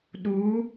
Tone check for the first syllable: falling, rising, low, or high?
rising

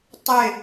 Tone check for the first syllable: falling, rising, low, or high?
falling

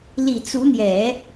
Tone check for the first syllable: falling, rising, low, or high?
low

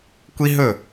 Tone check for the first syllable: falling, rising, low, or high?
high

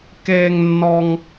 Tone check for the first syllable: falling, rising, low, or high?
high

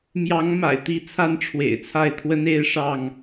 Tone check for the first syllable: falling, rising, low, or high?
rising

